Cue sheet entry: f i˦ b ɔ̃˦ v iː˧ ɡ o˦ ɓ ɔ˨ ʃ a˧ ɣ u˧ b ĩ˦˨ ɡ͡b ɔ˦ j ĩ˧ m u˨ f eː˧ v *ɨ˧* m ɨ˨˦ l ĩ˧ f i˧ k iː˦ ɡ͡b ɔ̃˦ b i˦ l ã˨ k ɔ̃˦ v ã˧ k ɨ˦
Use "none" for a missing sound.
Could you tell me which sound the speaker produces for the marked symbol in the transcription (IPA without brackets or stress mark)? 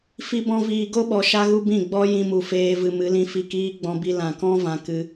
ɨ˧